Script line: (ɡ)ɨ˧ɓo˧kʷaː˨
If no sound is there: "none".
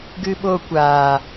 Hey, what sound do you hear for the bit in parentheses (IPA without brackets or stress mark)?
ɡ